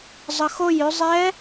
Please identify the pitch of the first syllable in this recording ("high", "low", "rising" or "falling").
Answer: low